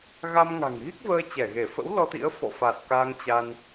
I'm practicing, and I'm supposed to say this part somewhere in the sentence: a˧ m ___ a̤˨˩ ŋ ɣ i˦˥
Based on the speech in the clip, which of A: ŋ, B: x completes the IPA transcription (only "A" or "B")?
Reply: A